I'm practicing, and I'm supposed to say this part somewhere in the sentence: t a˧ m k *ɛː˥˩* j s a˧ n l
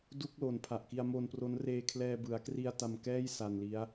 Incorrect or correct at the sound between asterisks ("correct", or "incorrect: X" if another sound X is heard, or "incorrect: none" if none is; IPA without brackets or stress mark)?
correct